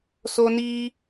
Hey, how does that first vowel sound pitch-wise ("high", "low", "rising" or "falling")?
high